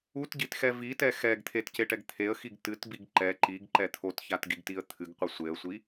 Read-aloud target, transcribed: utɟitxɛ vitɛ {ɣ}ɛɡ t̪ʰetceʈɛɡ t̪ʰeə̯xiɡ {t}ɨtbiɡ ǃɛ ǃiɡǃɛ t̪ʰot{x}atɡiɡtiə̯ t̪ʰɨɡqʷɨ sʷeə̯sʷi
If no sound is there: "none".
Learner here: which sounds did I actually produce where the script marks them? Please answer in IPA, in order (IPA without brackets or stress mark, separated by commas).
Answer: x, t, ç